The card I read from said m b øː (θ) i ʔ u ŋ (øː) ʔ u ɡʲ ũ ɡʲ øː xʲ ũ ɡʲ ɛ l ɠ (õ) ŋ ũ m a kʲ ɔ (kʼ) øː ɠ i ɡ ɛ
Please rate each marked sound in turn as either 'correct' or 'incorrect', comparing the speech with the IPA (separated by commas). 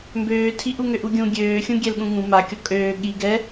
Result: incorrect, incorrect, incorrect, correct